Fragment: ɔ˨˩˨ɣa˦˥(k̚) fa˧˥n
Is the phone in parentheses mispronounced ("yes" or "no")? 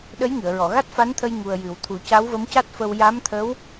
yes